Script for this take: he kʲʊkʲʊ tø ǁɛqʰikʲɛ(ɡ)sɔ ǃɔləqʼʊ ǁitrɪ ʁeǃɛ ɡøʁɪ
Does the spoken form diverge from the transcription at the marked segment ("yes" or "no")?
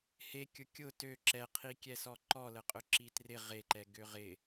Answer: yes